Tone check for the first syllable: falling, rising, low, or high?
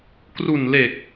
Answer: low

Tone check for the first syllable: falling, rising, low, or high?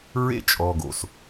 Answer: high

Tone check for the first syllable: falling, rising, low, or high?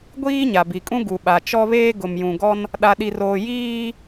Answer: high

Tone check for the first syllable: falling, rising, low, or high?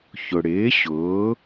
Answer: low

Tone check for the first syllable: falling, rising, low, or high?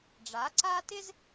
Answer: rising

